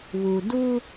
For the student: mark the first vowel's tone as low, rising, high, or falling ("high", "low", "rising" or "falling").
low